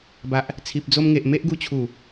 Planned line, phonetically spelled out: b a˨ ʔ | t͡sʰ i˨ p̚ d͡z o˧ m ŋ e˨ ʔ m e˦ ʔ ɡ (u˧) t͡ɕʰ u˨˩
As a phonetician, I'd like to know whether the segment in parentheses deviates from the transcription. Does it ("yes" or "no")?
no